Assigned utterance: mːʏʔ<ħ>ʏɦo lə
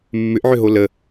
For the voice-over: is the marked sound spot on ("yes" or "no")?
no